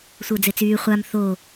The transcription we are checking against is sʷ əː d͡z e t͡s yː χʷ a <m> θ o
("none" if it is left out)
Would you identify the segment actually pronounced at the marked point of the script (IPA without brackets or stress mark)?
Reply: m